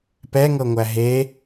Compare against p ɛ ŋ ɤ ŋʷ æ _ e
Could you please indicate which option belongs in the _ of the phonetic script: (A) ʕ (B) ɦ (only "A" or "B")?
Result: B